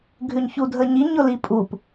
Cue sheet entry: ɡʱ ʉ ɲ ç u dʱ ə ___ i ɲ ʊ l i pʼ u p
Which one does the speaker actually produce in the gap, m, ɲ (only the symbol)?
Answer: ɲ